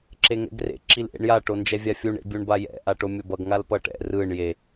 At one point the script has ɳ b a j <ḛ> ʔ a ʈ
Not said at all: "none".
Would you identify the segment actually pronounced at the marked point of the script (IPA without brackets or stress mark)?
ɛ̰